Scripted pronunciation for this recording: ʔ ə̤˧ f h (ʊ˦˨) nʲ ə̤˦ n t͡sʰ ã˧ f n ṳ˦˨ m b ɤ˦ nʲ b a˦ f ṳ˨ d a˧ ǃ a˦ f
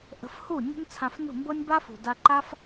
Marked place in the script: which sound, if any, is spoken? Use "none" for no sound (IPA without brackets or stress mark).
u˦˨